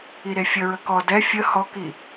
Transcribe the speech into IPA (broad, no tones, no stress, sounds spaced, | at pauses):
i ɾ e fʲ ə ɹ ə k ɔ d ɛ fʲ ə h ɔ k i